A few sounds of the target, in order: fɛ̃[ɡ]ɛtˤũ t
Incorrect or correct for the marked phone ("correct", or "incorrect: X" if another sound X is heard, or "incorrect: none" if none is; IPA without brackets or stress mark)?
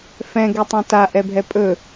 correct